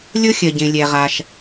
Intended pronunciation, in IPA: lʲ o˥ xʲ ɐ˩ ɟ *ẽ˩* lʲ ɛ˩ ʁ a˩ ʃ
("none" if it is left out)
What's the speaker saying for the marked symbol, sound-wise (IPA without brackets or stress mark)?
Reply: ẽ˩